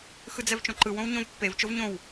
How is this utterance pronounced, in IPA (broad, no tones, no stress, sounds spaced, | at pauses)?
x ɯ d͡z ɛ v t͡ʃ õ ǃ ɯ w õ w ɲ õ v pː e v t͡ʃ o v ɲ õ w